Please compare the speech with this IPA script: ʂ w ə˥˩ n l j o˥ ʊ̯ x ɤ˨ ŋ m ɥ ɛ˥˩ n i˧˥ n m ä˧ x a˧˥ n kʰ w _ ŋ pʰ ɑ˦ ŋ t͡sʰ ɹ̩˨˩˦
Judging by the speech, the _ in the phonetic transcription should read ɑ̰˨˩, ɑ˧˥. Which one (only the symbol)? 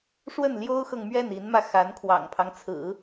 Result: ɑ̰˨˩